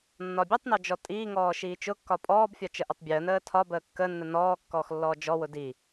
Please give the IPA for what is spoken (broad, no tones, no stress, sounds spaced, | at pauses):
nː ɒ bʲ ɯ tˤ n ɒ d͡ʒ ɔ tʼ iː ŋ ɔː ʃ iː t͡ʃ ʊ kː ɒ pʼ ɔː b fʲ ɒ t͡ʃ ə ʔ ʊ tˤ bʲ əː n əː tʰ ɒ b əː kː ə nː ə n ɔː kː ɔː x lː ɔː d͡ʒ ɔ w ʊ d i